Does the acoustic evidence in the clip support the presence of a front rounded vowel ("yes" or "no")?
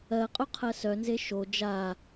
yes